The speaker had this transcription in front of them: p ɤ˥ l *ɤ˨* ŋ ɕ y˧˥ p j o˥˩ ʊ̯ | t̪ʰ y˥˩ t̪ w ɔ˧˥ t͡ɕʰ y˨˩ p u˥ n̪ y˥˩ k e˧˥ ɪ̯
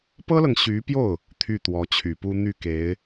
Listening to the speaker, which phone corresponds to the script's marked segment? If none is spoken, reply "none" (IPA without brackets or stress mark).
ɤ˨